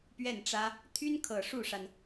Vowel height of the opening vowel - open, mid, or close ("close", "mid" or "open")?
mid